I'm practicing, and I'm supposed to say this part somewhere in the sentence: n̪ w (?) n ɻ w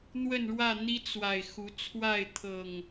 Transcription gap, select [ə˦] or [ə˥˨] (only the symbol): ə˥˨